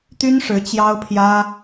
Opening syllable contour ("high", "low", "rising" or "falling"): high